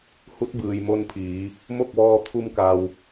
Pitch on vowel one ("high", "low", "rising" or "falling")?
rising